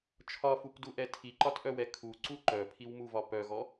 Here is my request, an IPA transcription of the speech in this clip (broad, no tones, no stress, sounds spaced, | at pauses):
t͡ʃʰ ɒ f u p d u ʔ ɛ tʰ i ǃ ɒ t ʔ œ w ɛ kʰ u ǀ u ǃ œ pʰ i w m u v ɒ p œ ɣ ɔ